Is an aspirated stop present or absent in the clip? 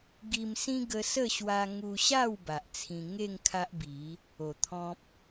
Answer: present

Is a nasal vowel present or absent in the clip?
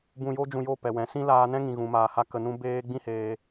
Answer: present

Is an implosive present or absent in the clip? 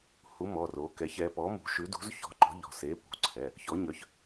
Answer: absent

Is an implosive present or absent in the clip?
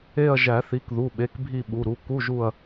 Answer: present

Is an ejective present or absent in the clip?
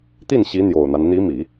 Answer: absent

